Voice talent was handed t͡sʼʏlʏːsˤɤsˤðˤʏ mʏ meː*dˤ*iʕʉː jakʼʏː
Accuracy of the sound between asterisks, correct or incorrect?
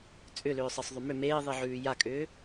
incorrect